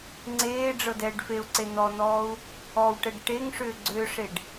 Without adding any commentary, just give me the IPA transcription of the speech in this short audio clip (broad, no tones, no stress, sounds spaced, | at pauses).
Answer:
ŋ͡ǀ eː ɖ͡ʐ ɤ d ɛː ɖ f e u̯ ǀ e n̪ ɔ n̪ ɔː u̯ | ɔ w ʈ ɛ ɖ ʈ e ŋ ʂ ʏː ɡ͡ǀ ʏː ʂ e ɖ